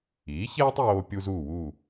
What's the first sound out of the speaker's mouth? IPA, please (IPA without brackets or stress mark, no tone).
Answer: iː